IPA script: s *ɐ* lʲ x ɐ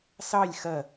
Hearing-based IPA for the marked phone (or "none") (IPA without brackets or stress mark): ɑ